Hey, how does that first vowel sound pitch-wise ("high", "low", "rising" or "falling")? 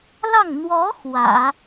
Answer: falling